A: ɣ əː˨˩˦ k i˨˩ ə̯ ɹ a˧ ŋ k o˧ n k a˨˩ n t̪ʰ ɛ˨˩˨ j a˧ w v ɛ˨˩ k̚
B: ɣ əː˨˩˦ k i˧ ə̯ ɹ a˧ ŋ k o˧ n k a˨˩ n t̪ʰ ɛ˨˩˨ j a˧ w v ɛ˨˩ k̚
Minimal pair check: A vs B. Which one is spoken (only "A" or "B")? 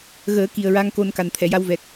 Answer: A